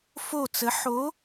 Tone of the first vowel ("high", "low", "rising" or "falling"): falling